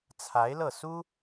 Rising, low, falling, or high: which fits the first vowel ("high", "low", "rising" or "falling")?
rising